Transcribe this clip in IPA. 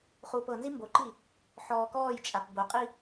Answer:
χ uː p ɤ n z i m b o ǃ i | ħ ɔː k ɔː j t͡ʃʼ a p b o qʼ i

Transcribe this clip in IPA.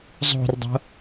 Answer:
zˤ o̤ r dˤ o̤

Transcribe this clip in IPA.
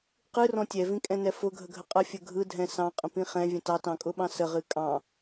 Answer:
q ɨ r ɔ̃ tʲ ɛ v ĩ kʼ ɛ̃ n ɛ f ʊ ɡʱ ə ɡʱ ə qʼ ə fʲ ə ɡʱ ɯ dʱ ɛ̃ s ɑ̃ qʼ ə̃ p ĩ χ ɛ̃ vʲ ə̃ t ɑ t ɑ̃ kʼ ʊ ɓ ɑ̃ s ə ʁ ɨ kʼ ɑ̃

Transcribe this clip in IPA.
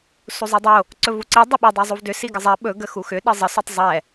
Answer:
s u zˤ ɛ dˤ o | ǀ ɵ v u ǀ i dˤ i ɓ ɵ dˤ ə˞ zˤ u v d ʏ s i ɡ ə zˤ ɛ ɓ ɵ ɡ ə x u x ʏ ɗ ə zˤ ə s u tˤ zˤ ɛ

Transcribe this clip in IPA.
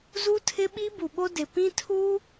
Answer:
z u˦ tʰ ɪ˦ ɓ i˦ b u˨ ɓ o˦ d ɪ˨ p ĩ˦ tʰ uː˦

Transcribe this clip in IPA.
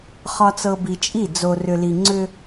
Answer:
χ ɒ˨ t͡s ɤ˨ b i˨ t͡ʃʼ i˦˨ d͡z o˨ r ʏ˨ l i˨ ŋ͡ǀ ʏ˦

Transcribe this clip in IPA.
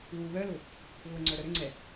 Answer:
w u β œ l ʊ | ɣ ʊ ŋ͡ǀ œ ɾ œ ɾ ʏ ŋ͡ǀ ɛ

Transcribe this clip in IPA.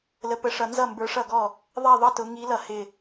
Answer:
l ə˨˦ p ə˨˦ ʂ ʌ˨˦ n z ʌ˥˩ m b ə˞˨˦ ʂ ʌ˥˩ ɡ ɔ˥˩ | ðˤ ɛ˥˩ ðˤ ʌ˥˩ t ʊ˨˦ ŋ i˨˦ l ʌ˥˩ h ɪ˥˩

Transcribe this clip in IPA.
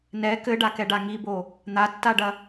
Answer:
n ɛ k ɘ ɖ a k ɛ ɖ a ŋ i b o | n̪ a tː a ɖ ɐ

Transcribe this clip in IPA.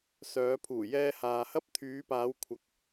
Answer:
s œː˨˧ pʰ uː˨˩ j ɛː˧ h aː˨ h ɐ˥ p̚ t̪ʰ yː˨˧ p aː˨˧ w kʷʰ ɐ˨ k̚

